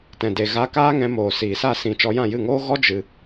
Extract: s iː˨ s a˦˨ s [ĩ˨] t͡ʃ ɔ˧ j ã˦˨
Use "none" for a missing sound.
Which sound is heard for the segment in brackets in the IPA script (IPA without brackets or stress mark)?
ĩ˨